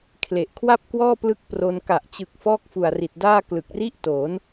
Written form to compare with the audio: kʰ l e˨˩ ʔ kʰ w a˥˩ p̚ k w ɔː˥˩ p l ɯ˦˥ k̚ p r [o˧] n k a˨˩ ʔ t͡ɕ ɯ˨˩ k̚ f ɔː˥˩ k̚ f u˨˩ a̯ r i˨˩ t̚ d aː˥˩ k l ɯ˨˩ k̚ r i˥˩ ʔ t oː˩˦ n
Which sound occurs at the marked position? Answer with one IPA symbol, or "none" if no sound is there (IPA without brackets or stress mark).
o˧